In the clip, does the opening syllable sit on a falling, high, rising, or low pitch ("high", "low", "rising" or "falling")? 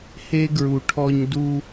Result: high